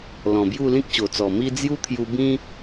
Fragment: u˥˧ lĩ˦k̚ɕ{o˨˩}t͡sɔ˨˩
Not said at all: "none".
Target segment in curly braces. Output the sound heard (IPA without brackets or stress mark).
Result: o˨˩